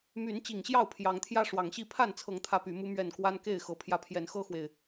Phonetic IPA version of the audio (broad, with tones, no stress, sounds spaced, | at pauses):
m y˨˦ n t͡ɕ i˨˩ ŋ ɕ j ɑ˥˨ ʊ̯ pʰ j ɑ˨˦ ŋ t̪ʰ j ä˦ ʂ w ɑ˨˦ ŋ ɕ i˥˨ pʰ a˥˨ n t͡sʰ ɤ˨˦ ŋ t̪ʰ ä˦ p y˨˦ m u˦ m ɥ ɛ˥˨ n k w a˦ n k e˥˨ ɪ̯ x ɤ˨˦ pʰ j ä˨˦ pʰ j ɛ˨˦ n x ɤ˦ x w e˨ ɪ̯